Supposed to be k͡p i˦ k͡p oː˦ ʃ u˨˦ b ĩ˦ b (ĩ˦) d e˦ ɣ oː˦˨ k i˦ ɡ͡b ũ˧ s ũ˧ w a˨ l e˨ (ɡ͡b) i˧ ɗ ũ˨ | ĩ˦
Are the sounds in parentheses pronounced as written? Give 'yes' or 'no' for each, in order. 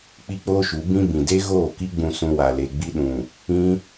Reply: no, yes

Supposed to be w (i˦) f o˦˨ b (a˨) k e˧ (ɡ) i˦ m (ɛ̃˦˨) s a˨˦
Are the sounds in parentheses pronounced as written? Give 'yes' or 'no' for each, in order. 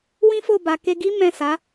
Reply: no, yes, yes, yes

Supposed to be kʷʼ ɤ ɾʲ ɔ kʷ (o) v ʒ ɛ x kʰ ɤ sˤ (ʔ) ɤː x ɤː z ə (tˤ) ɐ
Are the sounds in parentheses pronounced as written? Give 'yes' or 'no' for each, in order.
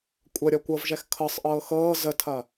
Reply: no, yes, no

